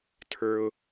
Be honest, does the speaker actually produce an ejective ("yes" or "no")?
no